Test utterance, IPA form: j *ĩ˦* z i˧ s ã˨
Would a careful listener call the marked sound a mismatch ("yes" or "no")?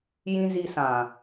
no